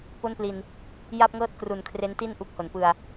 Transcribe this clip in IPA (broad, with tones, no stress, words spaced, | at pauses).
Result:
po˥˩npli˧n | ja˥˩p̚ŋɤː˥˩t̚ kru˨˩nkʰre˦˥nti˥˩n ʔu˦˥k̚ho˩˦npɯ˧a̯